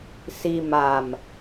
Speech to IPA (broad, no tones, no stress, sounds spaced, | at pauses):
s i m a m